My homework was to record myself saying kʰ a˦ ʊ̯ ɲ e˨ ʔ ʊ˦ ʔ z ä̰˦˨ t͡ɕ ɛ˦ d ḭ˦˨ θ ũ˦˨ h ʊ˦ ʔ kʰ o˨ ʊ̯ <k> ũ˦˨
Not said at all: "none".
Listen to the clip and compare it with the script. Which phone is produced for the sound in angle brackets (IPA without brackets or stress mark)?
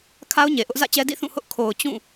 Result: t͡ɕ